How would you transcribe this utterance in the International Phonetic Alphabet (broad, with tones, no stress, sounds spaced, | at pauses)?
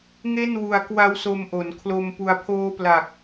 ŋ e˥˩ n w u˧ a̯ k w a˦˥ w s o˧ m ʔ o˩˦ n kʰ l o˧ m p u˧ a̯ pʰ oː˦˥ p l a˨˩ k̚